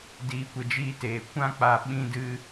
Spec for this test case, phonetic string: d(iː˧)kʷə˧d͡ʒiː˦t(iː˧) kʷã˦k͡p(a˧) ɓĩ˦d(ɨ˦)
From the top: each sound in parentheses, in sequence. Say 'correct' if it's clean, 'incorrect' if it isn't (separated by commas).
correct, incorrect, correct, correct